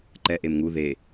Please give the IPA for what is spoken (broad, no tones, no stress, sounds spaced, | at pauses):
ǃ ɛ ʔ e m ŋ u ð e